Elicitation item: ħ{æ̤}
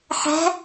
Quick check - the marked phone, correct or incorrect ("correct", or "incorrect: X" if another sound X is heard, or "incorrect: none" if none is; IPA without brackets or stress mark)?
correct